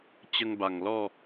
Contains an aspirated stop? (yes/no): no